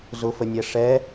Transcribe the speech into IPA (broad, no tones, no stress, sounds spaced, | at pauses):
z ʊ f ə nʲ ɛ ʂ ɛ